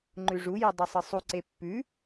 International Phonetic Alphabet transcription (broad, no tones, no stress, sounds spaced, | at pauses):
ŋ͡ǃ ʉ ʐ u j ɨ dˤ ɵ sˤ ɨ sˤ u ǀ e pː ʉ